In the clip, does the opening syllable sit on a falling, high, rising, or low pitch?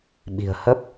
low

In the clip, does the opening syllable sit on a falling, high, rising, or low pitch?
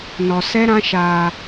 low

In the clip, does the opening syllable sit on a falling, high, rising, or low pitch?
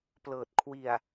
low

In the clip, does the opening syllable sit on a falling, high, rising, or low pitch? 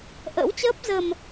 rising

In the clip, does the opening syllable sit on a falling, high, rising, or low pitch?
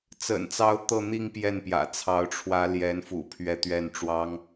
low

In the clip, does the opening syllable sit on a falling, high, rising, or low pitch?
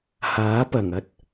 rising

